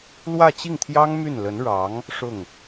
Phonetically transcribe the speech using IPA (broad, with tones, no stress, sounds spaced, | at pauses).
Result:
l w ä˥˧ t͡ɕ i˥˩ ŋ t̪ʰ j ɑ˥ ŋ m y˥˩ n l ə˧˥ n ɻ ɑ˧˥ ŋ | ʂ ʊ˥˩ ŋ